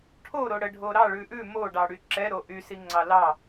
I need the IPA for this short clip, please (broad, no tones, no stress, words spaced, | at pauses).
ʈʰoɾo ɽəɖʱo ɾɑɭʉ ʔʉ moɖɑɽy ǁɛɾo ʔysi ŋ͡ǀɑlɑ